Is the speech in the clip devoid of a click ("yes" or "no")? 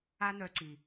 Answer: no